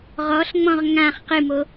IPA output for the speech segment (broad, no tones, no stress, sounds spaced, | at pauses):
ʁ ɔ ɬ ŋ͡m ɔ̃ ʁ ŋ ã χ q ɨ m o